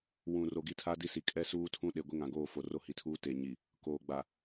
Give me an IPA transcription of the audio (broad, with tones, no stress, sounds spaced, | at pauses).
w ũ˨ r o˨ ɡ i˦ tʰ a˦ d i˦ s i˨ kʼ ɛ˦ s uː˦ tʰ ũ˦ ɗ e˨ ɡʷ e˦ ŋ ã˨ ɡ oː˦˨ f o˨ r o˦ h i˨˦ tʰ uː˦ t eː˨ ɲ i˨ | k oː˨ ɡ͡b a˨